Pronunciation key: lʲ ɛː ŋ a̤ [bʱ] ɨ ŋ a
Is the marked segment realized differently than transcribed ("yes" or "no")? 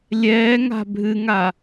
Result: no